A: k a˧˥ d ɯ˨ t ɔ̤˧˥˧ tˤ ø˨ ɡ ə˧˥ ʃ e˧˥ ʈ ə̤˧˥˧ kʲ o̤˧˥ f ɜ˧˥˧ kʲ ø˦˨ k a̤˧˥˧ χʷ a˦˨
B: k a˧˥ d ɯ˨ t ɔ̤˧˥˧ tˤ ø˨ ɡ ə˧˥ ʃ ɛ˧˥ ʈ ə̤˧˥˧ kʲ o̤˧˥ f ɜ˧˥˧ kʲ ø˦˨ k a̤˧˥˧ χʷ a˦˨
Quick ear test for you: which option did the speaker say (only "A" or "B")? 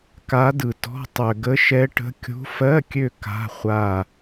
B